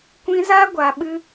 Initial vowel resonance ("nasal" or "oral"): nasal